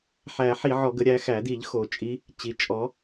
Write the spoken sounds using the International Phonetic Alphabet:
ħæ˨˩˦ ħi˨˩˦ʕɔ˨˩˦ɡə˨˩˦ ɾʲæ˨˦xæ˨˩˦ di˨˩˦ʎxo˨˩˦t͡ʃʼi˨˦ | t͡ɕi˩t͡ʃʼɔ˨˦

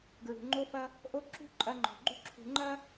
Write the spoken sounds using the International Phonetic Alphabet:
ɡɹṳ˨ŋ͡ǃo˦fɐ˦ | ʔo˦ ǁṳ˦ ǃʼɐ˦ŋ͡ǃɔ̤˨ ɡ͡ǃṳ˦ǁʰṳ˨ŋ͡ǃɐ˦

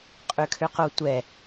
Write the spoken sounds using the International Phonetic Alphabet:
qʼøkʰøqotʷɛ

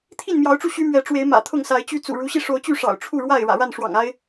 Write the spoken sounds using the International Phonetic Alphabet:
t̪ʰi˥˨nmjɑ˨˦ʊ̯ʈ͡ʂu˧ ɕy˦mɥɛ˨˦ʈ͡ʂwe˨˦ɪ̯ mä̰˨˩t̪ʰʊ˥˨ŋsa˨˦ɪ̯t͡ɕy˦ t͡sṵ˨˩ɻu˨˦ɕi˧ ʂo˨˦ʊ̯t͡ɕy˥˨ʂɑ̰˨˩ʊ̯ ʈ͡ʂʰu˥˨ɻwa˥˨ɪ̯ ɻä̰˨˩ɻa˥˨nʂwɑ̰˨˩ŋ a˦ɪ̯

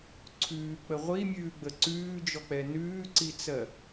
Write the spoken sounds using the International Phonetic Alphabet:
ǀʰʉːk͡pə ʁʷimʲʉːɡ͡bə ǀʉːd͡ʒɔk͡pɛ nʉːǀit͡sɜ

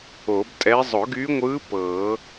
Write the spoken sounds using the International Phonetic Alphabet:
o˨˩˦btʼɛ˧˥ zˤʊ˨˩˦ɡyː˧˥ŋʷɯː˧˥ pɤː˨˩˦

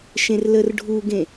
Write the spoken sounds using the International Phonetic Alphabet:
ʃẽrlərɖʱuɡẽ

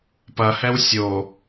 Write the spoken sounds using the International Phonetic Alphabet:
pɐhɛw sʲo

